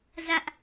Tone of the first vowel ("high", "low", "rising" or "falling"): high